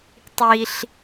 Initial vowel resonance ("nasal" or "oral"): oral